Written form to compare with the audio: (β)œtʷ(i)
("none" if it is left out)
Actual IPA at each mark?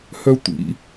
h, ḭ

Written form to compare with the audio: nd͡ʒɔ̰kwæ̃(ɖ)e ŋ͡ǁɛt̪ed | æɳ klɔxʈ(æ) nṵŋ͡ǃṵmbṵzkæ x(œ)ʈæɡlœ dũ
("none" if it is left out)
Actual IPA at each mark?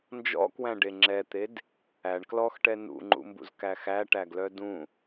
ɖ, ɛ, æ

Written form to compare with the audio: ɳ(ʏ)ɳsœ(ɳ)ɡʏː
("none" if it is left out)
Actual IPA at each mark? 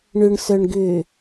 ʏ, ɳ

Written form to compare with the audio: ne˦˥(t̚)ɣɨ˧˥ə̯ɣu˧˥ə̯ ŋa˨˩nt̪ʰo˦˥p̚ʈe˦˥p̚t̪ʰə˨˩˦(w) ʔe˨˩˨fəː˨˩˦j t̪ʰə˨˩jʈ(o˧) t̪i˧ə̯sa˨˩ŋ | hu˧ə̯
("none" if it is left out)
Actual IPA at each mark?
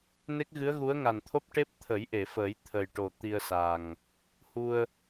k̚, j, o˨˩

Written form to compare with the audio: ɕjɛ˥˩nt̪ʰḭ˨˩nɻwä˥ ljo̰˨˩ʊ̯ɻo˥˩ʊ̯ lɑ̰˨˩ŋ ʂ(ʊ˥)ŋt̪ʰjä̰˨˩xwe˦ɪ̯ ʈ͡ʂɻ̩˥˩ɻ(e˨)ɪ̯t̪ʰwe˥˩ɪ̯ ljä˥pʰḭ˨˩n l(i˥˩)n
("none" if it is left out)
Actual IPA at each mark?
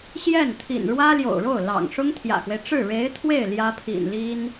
ʊ˥, e˧˥, i˥

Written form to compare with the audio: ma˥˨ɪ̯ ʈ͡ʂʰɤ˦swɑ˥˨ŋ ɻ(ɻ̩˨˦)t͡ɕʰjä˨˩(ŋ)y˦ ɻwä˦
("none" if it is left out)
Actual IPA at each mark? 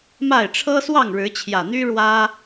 ɻ̩˨˦, n̪

